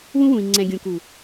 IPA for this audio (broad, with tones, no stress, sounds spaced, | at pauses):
w ũ˦ w ũ˨ i̯ ŋ͡ǀ ɛ̃˨ ɡʲ ũ˨ k u˨